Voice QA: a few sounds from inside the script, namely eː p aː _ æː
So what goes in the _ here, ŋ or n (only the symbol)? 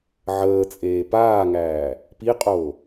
ŋ